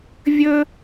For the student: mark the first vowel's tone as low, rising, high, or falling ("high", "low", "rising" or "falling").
high